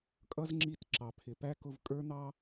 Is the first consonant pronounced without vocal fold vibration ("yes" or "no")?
yes